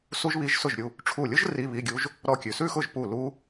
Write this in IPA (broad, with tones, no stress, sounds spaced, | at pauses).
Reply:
s u˦˥ ʒ β i˧˥˧ ʒ s ʊ˥˩ ʒ ɾʲ u˥˩ | ʈ͡ʂʰ u˧˩ lʲ ʊ˦˥ ʒ r i˧˥˧ β i˧˥˧ ɡʲ u˦˥ ʒ | ɾ ɔ˦˥ kʲ ʉ˩ s ʉ˥˧ x ʊ˥˩ ʒ p u˥˩ l u˦˥